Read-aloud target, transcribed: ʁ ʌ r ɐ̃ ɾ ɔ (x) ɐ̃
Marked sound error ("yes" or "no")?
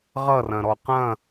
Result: yes